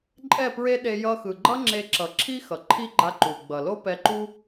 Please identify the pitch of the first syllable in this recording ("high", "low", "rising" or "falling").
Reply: falling